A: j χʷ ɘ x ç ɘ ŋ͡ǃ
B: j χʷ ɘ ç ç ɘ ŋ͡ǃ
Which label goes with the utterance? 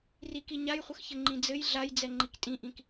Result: A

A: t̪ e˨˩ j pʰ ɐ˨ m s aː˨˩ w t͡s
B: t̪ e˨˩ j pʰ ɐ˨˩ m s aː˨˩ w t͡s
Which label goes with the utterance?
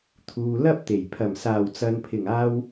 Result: B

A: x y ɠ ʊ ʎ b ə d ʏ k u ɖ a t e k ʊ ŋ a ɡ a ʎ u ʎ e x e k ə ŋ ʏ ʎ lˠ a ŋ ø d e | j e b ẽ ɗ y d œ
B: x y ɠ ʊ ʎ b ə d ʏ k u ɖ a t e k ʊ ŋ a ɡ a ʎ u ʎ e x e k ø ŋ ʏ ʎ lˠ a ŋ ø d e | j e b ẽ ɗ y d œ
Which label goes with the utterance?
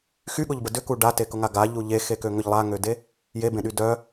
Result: B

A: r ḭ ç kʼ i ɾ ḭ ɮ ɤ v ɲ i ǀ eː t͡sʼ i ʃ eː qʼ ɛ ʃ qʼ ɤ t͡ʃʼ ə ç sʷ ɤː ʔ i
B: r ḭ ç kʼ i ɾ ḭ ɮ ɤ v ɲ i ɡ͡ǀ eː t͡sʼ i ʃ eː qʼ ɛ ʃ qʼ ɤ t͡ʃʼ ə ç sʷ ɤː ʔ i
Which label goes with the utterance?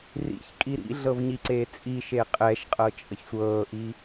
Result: A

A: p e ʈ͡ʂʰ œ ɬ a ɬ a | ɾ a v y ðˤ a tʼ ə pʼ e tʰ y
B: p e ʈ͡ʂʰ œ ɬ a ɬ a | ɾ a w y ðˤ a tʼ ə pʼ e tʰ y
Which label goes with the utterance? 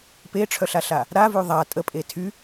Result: A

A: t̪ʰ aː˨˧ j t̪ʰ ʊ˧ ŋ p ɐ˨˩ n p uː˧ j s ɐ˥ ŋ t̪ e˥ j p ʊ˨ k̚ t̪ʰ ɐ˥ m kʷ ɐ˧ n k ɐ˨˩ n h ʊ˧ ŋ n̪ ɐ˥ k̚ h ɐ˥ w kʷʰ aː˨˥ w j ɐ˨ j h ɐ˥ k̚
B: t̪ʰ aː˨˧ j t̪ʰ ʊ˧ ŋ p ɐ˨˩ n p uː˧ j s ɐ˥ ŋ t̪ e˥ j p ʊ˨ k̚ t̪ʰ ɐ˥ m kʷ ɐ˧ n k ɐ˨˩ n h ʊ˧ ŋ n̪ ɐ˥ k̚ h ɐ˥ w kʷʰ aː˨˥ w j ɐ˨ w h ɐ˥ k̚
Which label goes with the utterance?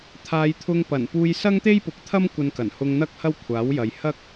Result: A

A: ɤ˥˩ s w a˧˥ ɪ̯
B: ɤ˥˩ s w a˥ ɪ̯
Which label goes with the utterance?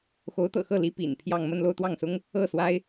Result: B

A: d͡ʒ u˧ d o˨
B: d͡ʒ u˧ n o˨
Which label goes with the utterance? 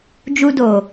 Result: A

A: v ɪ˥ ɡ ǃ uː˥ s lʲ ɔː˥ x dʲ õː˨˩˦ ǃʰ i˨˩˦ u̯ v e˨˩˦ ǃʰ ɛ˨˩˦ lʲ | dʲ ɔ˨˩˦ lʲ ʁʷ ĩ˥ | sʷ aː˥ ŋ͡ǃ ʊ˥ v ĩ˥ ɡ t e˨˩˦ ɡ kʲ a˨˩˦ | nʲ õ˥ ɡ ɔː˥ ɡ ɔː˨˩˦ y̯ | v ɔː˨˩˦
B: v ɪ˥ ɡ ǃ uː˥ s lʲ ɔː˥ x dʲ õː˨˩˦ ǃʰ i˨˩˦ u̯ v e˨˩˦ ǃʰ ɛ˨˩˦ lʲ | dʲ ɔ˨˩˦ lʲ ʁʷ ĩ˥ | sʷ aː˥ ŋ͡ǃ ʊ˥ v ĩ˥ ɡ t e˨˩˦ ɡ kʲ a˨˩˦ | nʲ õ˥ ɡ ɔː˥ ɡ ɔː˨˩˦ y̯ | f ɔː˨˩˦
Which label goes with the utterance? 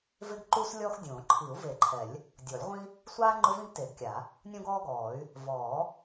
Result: A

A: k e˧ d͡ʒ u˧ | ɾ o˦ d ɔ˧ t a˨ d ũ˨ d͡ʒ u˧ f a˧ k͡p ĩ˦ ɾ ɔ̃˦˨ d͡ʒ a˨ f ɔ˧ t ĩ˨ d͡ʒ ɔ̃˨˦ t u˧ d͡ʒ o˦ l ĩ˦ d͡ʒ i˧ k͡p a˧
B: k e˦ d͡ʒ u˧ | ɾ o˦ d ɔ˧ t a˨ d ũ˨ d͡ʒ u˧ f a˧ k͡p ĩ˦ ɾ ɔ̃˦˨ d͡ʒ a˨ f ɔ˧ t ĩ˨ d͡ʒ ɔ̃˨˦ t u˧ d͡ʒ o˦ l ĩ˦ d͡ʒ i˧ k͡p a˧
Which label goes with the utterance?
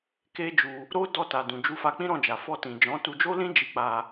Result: B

